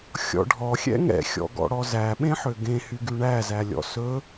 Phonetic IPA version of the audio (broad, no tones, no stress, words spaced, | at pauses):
xʲɔ̰ɖʱɔ xʲɛ̰ŋɛ̰xʲɔ̰ɡɔ̰ ɽɔzæɓẽħø ɡẽhy ɡyɳæzælʲɔ̰ sɵ